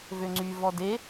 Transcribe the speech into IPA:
vøŋ͡ǀy vɔde

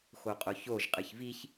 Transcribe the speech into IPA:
xoqʼoçoʒ qʼɨçviç

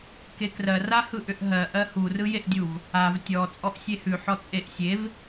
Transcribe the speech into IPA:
kekrɜ rahɯʔʏʔɦɜ ʔɜhu rɯjeʔdʲuv | av tʲɔ t͡sʼɔʔsʲehʉ ħɔt͡sʼeʔ sʲev

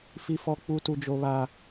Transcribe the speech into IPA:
fi˨fɔ˨k͡pu˨ tu˨d͡ʒo˨βa˨

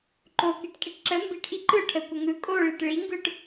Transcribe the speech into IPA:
ǃo kiʈkʼiʈǁə mbiʈ ʔiǃɯ ʈʰəkʷə ŋɯ kʼoɭiʈ ɭiŋɡɯʈ

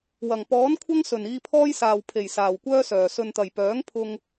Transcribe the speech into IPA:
wɐ˨˩ŋ pɔː˨˥nkʷʰɐ˥ŋ sɵ˨˩niː˧pʰɔː˥jsaː˨w pʰe˨˩jsaː˨˩wkʷœː˥sœː˨˩ sɵ˨nt̪ɐ˨˩jpœː˨˥ŋpʰʊ˧ŋ

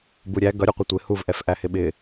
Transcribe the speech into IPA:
buɾʲæ ɡʌɾʲuqʷʌ tʷɪ huvʔɛf ʔæhɪɓɪ

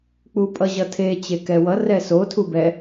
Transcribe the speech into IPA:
k͡pupʼʌʑʌtʰe t͡ɕekɛwʌ rɛso tʰubɛ

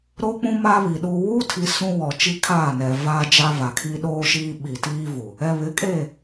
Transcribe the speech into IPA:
ɾo˦k͡pũ˦ma˦βi˨ ɗuː˨wuː˦tʰi˨ sũ˦wɔ˨ t͡ʃi˦kʰaː˦˨nɛ˨ vaː˦d͡ʒa˦va˨kʰi˦ ɗoː˦ʃiː˦ ɓi˨tiː˦vu˨ | ɛ˨βɪ˨˦kʼe˦˨

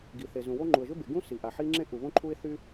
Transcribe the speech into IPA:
ɡi˩θe˩zũ˩wo˥ ŋ͡ǃu˩ə̯ʒʏ˥be˩ ɡũ˥ si˩ʔa˩ ħi˥ ŋ͡ǁẽ˥ʔu˩βõ˥ ǃʰu˥ɪ̯θy˥

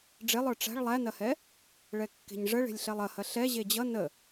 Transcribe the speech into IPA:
ɖ͡ʐelˠə˞ ʈ͡ʂæ̤ɭ lˠænɐhɛ | ɭɛkːe̤ɲʐəɭe̤lʲ ɬɛlˠɐhɐ ɬɛ ʑed͡ʑʌ nə

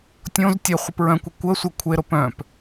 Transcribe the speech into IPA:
tʲõz tʲœχʷɪ pɹœ̃kʷə kʷə sʷə kʷʰeɾo pœ̃p

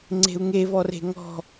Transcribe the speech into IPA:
ŋ͡ǀe̤u̯ŋevɔre̤ ŋɔ̤

